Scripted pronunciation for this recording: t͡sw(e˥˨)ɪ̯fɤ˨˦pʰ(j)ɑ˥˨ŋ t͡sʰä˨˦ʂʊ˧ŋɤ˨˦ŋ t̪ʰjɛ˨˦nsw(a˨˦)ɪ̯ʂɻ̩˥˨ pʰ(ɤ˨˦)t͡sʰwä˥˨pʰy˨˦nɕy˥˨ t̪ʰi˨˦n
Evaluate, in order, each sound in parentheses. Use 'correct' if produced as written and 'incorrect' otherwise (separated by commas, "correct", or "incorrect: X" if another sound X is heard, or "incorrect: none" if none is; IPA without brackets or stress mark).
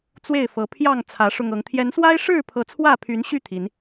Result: correct, correct, incorrect: a˦, correct